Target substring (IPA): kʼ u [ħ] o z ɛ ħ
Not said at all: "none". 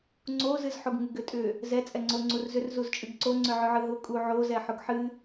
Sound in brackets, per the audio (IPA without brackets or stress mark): ʕ